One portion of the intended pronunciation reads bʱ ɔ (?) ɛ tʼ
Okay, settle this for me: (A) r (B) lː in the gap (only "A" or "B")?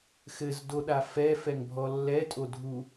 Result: B